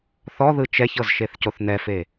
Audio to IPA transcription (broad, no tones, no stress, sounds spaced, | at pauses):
θ ɔ ð ɯ t͡ʃ ɛ ç ɤ z ʃ e θ c o θ n ɛ f e